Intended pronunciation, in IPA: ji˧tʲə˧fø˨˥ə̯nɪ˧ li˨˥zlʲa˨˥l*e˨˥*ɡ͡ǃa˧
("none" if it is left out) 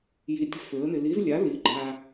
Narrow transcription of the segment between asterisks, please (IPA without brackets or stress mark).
i˨˥